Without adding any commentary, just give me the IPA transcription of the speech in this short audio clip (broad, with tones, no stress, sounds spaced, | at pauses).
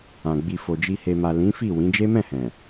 ã˨ ɡ͡b i˨ f o˨ d͡ʒ i˨ h e˨ m a˨ l ĩ˨˦ f i˦˨ w ĩ˨˦ d͡ʒ e˦ m ɛ̃˦˨ h ɛ̃˨